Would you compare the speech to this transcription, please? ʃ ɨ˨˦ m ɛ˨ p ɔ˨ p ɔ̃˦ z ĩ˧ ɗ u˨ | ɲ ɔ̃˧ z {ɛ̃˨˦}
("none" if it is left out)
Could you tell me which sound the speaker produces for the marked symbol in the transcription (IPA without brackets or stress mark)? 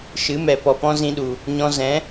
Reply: ɛ̃˨˦